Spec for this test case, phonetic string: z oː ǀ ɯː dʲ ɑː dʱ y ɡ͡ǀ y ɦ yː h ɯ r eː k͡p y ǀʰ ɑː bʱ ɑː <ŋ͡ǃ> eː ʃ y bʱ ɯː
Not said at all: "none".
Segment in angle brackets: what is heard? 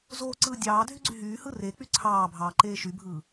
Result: ǃ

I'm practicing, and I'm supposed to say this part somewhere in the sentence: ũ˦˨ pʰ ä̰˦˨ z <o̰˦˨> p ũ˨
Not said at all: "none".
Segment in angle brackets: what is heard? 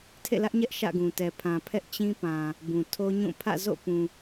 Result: o̰˦˨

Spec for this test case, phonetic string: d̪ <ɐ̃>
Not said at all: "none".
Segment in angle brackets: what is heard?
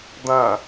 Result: ɐ̃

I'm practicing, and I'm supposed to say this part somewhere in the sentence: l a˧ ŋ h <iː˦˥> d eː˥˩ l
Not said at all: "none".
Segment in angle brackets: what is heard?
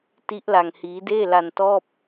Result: iː˦˥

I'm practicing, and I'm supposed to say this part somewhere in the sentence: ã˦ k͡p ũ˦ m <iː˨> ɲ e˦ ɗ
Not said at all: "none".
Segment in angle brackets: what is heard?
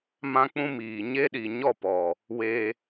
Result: iː˨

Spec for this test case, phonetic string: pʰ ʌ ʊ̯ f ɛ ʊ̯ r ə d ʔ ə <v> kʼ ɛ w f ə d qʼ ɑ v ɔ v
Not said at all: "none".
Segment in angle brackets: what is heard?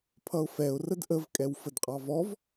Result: v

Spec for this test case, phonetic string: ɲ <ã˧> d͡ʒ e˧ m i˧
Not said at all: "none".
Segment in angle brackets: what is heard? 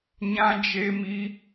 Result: ã˧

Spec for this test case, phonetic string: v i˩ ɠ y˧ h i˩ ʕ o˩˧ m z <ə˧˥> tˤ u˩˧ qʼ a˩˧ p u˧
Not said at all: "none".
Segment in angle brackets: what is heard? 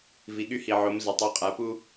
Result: ə˩˧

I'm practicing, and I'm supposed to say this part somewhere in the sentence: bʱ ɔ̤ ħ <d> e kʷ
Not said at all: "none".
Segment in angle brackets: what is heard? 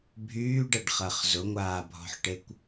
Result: ʈ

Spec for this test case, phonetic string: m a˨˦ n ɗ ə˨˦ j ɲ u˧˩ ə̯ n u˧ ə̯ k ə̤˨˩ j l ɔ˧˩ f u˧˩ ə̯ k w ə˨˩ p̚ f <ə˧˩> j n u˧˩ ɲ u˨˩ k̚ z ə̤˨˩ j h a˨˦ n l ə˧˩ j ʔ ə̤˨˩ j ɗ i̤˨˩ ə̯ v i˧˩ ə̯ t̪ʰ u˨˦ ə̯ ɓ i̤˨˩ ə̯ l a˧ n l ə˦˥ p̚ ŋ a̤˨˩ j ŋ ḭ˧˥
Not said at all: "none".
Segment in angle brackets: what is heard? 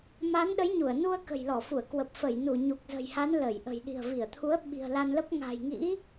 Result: ə˧˩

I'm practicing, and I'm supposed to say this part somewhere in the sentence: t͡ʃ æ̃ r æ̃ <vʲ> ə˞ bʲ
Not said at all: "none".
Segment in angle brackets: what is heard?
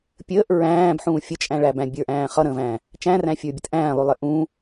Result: fʲ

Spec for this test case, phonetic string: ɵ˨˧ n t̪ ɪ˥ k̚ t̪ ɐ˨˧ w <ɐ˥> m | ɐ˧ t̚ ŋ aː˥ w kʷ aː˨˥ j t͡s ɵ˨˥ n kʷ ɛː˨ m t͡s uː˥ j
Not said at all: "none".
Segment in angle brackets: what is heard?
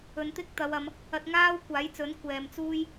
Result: ɐ˨˧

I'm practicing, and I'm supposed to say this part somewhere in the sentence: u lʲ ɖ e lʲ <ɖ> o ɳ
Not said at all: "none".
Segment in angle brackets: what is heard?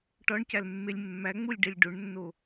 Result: ɖ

